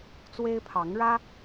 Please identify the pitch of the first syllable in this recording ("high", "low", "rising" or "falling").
high